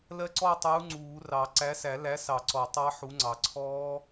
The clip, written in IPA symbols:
l ɜ˦˥ ǀ ɔ˥˧ tˤ uː˨˥ ŋ͡ǀ uː˨˩˦ r ɑ˨˩˦ ǀ æ˨˥ s æ˨˩˦ l æ˨˥ s ɑ˨˩˦ ǀ ɔ˨˩˦ tˤ ɑ˦˥ ħ u˨˥ ŋ͡ǀ ɑ˨˩˦ ǀʰ ɔː˦˥

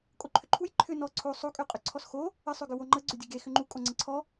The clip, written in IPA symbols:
kʼ o ǃʰ ʏ ǃʰ u j ǃʰ ʏ n ɔ ǀʰ o sˤ o kʼ ø qʼ ʏ ǀʰ ɔ s x o | ə sˤ ø ɡ ʏ w o ŋ͡ǃ ə ɡ͡ǀ ʏ dʲ ə ɡ e x ʏ ŋ͡ǃ u kʼ o ŋ͡ǀ ə ǀʰ ɔ

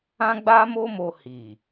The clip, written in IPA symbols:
ã˦ ɡ͡b a˦ m o˦ m o˧ h i˨

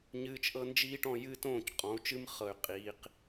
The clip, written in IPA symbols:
ɲ ɨː˨ t͡ʃ ʔ ɤ˧ n d͡ʒ iː˧ ʈ ɔ̃˦˨ j ɨː˦ t õː˦˨ c qʼ ɔ̃˨˦ u̯ t͡ʃ ɨ˦ m χ ɤ˨ y̯ qʼ iː˨ q

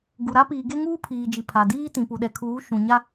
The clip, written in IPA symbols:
ɡ u˨ ɾ a˦ p iː˨ ɡ e˦ ŋ uː˦ pʰ iː˨ d͡ʒ i˨ pʰ a˨ d iː˦ t ĩ˨ p u˨ ɗ ɛ˨ kʰ uː˨˦ ʃ ũ˨ ɲ a˦

